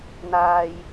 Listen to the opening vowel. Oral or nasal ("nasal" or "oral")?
oral